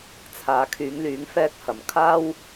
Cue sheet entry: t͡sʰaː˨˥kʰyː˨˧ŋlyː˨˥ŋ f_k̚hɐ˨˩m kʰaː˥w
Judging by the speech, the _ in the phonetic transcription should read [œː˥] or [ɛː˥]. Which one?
ɛː˥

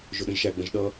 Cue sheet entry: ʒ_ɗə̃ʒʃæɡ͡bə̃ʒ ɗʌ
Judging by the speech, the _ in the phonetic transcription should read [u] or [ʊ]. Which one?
ʊ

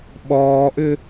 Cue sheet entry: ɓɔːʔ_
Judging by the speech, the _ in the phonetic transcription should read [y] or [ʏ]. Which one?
ʏ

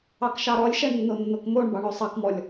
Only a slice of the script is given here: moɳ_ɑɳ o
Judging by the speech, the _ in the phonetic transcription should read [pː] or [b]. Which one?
b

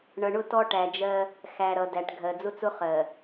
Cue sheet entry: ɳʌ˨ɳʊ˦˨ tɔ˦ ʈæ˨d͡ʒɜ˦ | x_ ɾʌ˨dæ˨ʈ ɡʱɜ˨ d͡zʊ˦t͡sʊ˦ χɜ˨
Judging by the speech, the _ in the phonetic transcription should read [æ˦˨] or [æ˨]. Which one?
æ˨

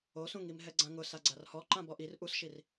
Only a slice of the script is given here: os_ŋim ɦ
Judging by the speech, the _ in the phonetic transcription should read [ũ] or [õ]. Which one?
ũ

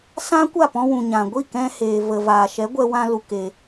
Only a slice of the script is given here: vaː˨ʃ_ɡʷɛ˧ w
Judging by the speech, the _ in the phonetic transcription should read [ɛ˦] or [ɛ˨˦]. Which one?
ɛ˨˦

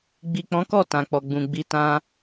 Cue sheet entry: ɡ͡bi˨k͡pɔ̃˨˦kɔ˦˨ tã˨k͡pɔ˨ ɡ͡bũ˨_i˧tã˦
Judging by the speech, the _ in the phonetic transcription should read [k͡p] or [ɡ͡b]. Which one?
ɡ͡b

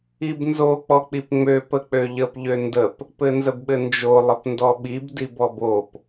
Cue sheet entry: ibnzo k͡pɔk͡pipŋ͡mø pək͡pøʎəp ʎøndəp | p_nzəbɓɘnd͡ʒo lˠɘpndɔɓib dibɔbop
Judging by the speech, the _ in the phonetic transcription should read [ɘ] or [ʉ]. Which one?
ɘ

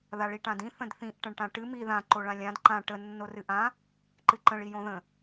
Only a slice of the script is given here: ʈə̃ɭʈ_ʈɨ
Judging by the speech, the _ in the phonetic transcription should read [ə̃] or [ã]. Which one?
ã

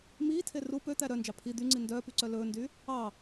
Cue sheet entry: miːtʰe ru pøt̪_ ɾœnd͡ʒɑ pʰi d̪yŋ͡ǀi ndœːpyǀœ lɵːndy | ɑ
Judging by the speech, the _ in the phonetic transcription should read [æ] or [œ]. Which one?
æ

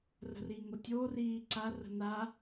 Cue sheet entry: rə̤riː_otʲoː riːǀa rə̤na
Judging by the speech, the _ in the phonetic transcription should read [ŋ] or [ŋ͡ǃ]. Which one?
ŋ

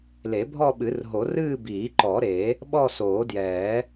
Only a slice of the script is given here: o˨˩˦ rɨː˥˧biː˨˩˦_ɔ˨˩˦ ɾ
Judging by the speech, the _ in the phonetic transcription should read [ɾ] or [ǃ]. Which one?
ǃ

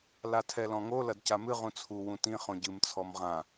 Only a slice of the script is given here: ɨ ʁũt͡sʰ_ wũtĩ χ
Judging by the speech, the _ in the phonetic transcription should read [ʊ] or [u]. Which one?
u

